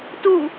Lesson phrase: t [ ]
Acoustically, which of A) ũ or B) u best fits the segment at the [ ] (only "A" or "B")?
B